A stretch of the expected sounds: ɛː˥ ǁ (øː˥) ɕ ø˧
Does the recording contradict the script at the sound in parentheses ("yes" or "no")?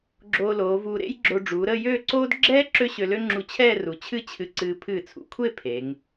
yes